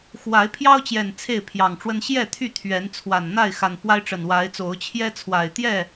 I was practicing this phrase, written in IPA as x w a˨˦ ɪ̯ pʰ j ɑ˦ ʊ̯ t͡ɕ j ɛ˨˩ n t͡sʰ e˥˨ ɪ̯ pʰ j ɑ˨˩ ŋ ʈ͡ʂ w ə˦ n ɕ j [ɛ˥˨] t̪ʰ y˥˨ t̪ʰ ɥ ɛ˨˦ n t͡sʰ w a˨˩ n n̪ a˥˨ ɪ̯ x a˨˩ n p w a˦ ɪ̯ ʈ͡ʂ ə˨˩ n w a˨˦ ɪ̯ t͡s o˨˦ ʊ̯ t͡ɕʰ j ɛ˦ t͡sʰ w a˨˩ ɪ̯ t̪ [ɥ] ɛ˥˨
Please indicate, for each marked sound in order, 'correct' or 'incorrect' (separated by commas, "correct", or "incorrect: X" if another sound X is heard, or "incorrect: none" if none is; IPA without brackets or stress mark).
correct, incorrect: j